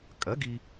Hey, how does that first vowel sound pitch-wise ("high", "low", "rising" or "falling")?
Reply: rising